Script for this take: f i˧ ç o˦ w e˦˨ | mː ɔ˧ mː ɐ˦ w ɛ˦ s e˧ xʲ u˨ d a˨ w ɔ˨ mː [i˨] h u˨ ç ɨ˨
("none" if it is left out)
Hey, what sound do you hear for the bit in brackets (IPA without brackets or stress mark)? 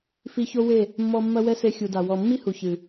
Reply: i˦